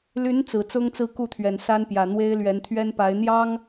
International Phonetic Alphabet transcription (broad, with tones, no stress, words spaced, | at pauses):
ly˧˥n t͡sɹ̩˨˩ t͡sʊ˥ŋt͡sɹ̩˥˧ku˥˩t̪ʰɥɛ˨˩n sa˥npjä˨˩ n̪we˥ɪ̯lɥɛ˧˥n t̪ʰɥɛ˥npa˧˥ɪ̯ n̪jɑ˥ŋ